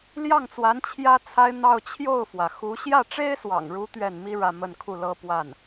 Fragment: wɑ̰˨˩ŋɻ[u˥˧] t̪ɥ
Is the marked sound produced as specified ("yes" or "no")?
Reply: no